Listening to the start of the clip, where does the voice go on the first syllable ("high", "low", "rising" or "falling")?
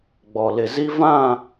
low